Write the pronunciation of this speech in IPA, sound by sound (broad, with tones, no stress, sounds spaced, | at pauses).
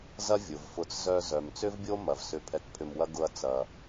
z ɐ˦ vʲ ʊ˨ v f ʊ˧ t͡s z œ˧ z œ˨ m t͡s ʏ˦ v bʲ o˦ m ɐ˧ v s ʏ˦˨ pʰ ɛ˧ k pʰ ʏ˧ m w ɐ˦ ɡ ʊ˦ ɐ̯ t͡s ɐ˧